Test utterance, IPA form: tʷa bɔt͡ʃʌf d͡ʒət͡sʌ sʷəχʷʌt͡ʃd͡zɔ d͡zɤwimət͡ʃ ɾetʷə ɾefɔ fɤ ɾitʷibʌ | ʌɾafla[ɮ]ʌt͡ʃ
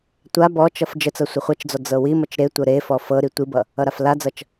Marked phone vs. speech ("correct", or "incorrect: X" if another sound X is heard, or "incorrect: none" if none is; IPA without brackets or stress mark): incorrect: d͡z